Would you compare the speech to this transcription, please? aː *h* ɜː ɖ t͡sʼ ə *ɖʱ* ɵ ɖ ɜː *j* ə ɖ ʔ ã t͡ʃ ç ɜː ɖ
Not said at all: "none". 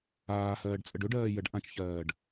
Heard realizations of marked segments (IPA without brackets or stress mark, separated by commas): h, ɖ, j